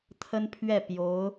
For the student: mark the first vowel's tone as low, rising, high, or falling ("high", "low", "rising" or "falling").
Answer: high